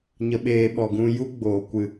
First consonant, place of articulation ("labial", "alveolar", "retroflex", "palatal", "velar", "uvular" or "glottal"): palatal